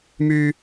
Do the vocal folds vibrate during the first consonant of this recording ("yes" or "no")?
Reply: yes